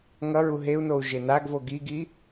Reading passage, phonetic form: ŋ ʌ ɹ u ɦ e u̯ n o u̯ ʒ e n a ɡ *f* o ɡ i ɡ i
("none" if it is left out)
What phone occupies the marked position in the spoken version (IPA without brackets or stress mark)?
v